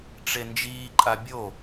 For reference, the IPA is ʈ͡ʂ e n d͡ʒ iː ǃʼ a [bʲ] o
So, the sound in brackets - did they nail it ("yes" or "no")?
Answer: yes